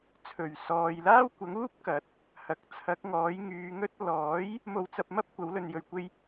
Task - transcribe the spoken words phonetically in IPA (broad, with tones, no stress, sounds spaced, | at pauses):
t͡sʰ ɵ˨˩ ɥ s ɔː˨ j l aː˥ w kʷ ɐ˨˥ ŋ uː˥ p̚ k ɐ˨˥ t̚ | h ɐ˨ k̚ t͡sʰ ɐ˨˥ k̚ ŋ ɔː˨˥ j ŋ yː˨˧ ŋ ɵ˥ t̚ l ɔː˨˥ j | m o˧ w t͡s ɐ˧ p̚ m ɐ˥ p̚ kʷ ɐ˨˥ w l ɵ˧ n j ɵ˧ ɥ kʷ e˥ j